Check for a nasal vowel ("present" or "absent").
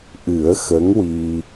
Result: absent